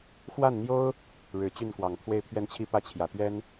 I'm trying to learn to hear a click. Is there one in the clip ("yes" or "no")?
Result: no